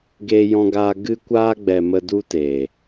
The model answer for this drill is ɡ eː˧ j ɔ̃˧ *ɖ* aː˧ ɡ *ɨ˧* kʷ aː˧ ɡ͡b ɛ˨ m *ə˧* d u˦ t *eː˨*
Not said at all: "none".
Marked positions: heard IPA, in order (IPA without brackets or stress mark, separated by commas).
ɡ, ɨ˧, ə˧, eː˨